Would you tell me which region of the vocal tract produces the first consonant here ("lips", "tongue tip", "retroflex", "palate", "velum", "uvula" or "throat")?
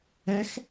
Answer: velum